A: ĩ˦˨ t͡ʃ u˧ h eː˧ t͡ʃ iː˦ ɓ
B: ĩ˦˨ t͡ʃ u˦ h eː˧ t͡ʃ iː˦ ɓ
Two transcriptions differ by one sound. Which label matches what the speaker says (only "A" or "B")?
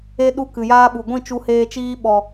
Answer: A